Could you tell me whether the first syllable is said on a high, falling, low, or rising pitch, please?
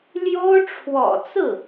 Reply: high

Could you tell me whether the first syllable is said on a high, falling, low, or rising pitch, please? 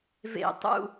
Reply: falling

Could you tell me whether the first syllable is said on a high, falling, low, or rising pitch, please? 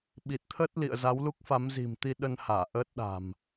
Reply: low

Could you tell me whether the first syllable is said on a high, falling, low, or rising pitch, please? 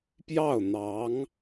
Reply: falling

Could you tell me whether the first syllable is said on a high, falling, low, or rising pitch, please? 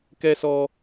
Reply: high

